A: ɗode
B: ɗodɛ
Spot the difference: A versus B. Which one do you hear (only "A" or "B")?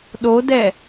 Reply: B